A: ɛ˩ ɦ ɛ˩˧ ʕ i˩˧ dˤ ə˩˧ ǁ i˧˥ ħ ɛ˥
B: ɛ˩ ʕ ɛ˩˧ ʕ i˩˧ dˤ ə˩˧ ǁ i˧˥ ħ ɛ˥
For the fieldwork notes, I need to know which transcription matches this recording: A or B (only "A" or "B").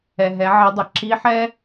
A